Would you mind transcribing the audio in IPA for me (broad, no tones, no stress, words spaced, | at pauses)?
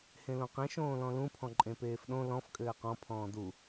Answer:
hẽlõqẽ ʃõːlɔ̃lũ pʰɔ̃ǃʼẽpeːfɗõ lɔ̃f kʼɘːqɔ̃ pʰɔ̃ːdu